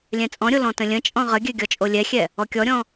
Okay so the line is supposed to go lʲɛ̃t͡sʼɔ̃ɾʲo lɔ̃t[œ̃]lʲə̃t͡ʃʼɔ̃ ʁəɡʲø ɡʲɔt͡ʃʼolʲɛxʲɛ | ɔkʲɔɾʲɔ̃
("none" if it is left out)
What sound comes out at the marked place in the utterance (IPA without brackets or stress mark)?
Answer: ə̃